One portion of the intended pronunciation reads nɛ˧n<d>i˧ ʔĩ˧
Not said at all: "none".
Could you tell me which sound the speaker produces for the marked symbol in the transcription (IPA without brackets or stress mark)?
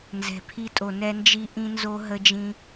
d͡ʒ